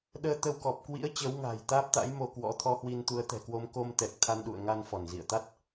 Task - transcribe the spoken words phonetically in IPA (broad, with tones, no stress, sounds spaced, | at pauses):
ɗ əː˧ t̪ ə˧ w k ɔ˨˩ p̚ k w ḭ˧˥ ə̯ t͡ɕ ə˨˦ w ŋ a̤ː˨˩ j t̪ aː˦˥ p̚ t̪ a̰˧˥ j m o˧ k w ɔ̰˧˥ t̪ʰ ɔ˧ h w i˧ n t̪ u˨˦ ə̯ t̪ ɛ̤˨˩ k w o˧ m k o˧ m t̪ ɛ˨˩ k̚ t̪ʰ a˧ n ɗ ṵ˧˨ ə̯ ŋ a˧ n f ɔ˧˩ n z ḭ˧˨ ə̯ t̪ a˦˥ t̚